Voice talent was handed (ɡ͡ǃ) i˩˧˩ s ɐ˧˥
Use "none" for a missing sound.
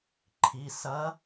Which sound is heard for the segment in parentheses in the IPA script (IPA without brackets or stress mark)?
ǃʰ